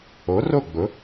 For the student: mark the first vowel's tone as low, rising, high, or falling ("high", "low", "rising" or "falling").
rising